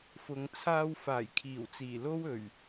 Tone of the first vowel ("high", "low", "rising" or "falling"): low